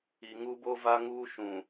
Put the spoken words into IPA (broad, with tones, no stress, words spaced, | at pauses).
i˨ŋu˦bo˦ va˦ŋuː˦ʃũ˨